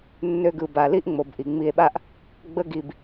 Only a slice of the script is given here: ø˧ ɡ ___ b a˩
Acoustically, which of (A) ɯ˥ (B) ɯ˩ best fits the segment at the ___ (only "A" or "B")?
B